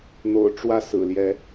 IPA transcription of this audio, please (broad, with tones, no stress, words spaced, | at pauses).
n̪o̰˨˩ʊ̯ʈ͡ʂwä˥˨ sɹ̩˨˩ljɛ˨˦